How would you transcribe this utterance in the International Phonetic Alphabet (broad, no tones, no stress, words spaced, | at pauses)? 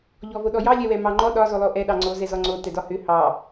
ʎɔvoɗɔjɑ lʲɛwɛmɑŋ͡ǃɔ ɗɒ zolˠoʔɛ ɗɑŋ͡ǀo zɛzɔŋ͡ǀo tɛdɒhʏ hɑ